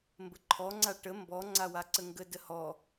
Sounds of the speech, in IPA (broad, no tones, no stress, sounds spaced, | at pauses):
m b ə ǃʰ ɔ ŋ͡ǀ a ʈ ə m b ɔ ŋ͡ǀ a w a ǀ ə ŋ ɡ ə d ə h ɔ